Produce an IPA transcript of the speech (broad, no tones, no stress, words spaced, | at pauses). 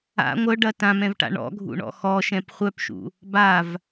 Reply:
a̰ ŋʷœɖɐ tãmɛ̃vʈa̰ ɳɔ̰ɡʱṵɳɔ̰ xɔʃɛ̃p χʷœpʃṵ | bav